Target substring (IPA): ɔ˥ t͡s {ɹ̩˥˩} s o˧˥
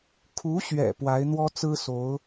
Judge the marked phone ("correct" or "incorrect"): incorrect